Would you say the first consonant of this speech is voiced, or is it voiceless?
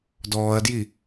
voiced